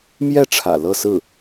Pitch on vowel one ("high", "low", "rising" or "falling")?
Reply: falling